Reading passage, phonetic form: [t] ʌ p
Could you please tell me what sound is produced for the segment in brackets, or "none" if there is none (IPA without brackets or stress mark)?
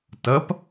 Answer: t